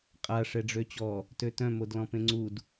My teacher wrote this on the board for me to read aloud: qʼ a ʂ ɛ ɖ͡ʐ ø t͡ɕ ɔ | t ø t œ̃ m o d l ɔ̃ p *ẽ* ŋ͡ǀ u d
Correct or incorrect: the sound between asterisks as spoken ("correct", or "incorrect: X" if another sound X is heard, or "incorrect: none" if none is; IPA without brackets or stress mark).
correct